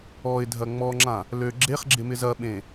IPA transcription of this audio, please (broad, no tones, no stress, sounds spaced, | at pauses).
ɔ ɪ̯ dʱ ɐ ŋ͡m ɔ ŋ͡ǁ ã | l ø ɡ͡ǁ e χ ɡ͡ǁ ɪ m ɪ z ɐ ɓ ẽ